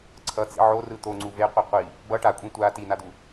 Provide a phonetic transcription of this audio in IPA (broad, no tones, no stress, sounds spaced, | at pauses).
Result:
ǀʰ ʌ t͡s ḭ ʕ o r ɯ t̪ o ŋ͡ǀ u v e qʷ e qʷ i | b ʌ ʈ a kʷʼ ĩ tʷ a t i n a d̪ u